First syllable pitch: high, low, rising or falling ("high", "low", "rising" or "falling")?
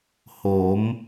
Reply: rising